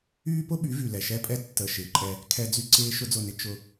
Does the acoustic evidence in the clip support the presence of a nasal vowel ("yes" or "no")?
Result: no